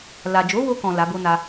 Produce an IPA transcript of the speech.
l a˨ d͡ʒ o˨˦ w o˧ k ɔ̃˨ l a˨˦ b o˦ n a˦

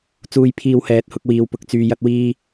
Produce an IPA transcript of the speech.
t͡s uː˧ j pʰ iː˧ w h ɛː˨˥ t̚ h ʊ˧ k̚ w iː˨˧ w p ʊ˧ k̚ t͡s yː˧ j ɐ˥ t̚ w iː˥

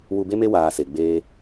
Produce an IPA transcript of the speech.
w u˧ b e˦ m e˦ w aː˧ s e˨ ɡ͡b eː˦

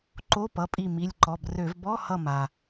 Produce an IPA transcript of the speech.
ǃ o˧˥˧ p ʌ˩˧˩ pʼ i˧˩ m i˩˧˩ lʲ ǃ ɔ˩˧˩ b r ø˧˩˧ v b ɔ˧˥˧ h ʌ˧˩ m a˩

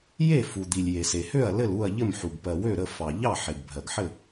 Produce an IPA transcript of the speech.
j e˥˩ f u˩ d̪ i˩ lʲ j e˩ s e˩ h ø˥˩ ɐ̯ l ɘ˥˩ l u˥˩ ɐ̯ ʎ ɘ˥˩ m ħ u˩ ɡ p ɜ˩ w ø˥˩ ɾ ə˥˩ f ɑ˩ ʎ ɑ˥˩ ħ e˩ ɡ bʱ ɜ˩ ɡ ħ ɘ˥˩

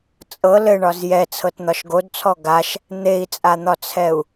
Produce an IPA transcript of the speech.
t͡sʼ ɤ l ɘ ɳ ɒ z j ɛ t͡sʰ ɤ t n̪ ɒ ʃ ɡ o d t͡sʰ ɔ ɡ a ʃ | n̪ e i̯ t͡sʼ a n̪ ɒ t͡sʰ ɛ u̯

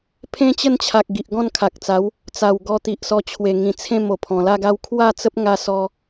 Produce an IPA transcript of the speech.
pʰ ẽ˦ t͡ɕ ə˥˧ n t͡ɕʰ a˨ k̚ ɡ i˨ ʔ ɡ ɔ̃˥˧ n kʰ a˨ k̚ t͡s a˨˦ w | t͡s a˨˩ w ɡ ɔ˧ t̪ i˨ ʔ s ɔ˧ t͡ɕʰ w e˨˩ ŋ ĩ˨˩ t͡sʰ ẽ˥˧ m o˨˩ pʰ ɔ̃˨˩ l a˥˧ ɡ a˦ w kʰ w a˥˧ t͡s ə˦ p̚ ŋ a˧ s ɔ˧

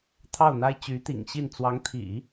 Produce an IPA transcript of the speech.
t̪ʰ ɑ˥˩ ʊ̯ n̪ a˥ ɪ̯ t͡ɕ y˧˥ t̪ ḭ˨˩ ŋ ɕ i˥˩ n t͡s w ɑ˧˥ ŋ t̪ʰ ḭ˨˩˦

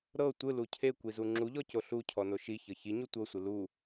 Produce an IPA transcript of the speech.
ɾ ɤ tʷ ɯ l u cʰ e kʷ i z u ŋ͡ǁ u ʎ ɔ c o ɬ u cʰ ɔ n o ʃ i ç ɤ ç i ɲ u tʷ ɤ sʷ ɯ l u

